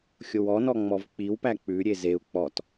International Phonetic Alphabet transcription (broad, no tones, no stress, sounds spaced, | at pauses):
xʲ o w ɔ n ɔ ŋ͡m ɔ v k͡p i w p æ k͡p ʉ ɾʲ e z e u̯ k͡p ɔ t